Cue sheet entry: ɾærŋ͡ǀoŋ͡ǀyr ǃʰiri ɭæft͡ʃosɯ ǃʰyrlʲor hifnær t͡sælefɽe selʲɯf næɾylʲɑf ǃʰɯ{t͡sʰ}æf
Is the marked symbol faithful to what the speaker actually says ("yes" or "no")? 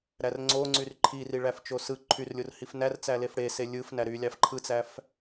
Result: no